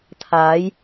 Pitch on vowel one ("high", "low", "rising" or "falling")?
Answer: rising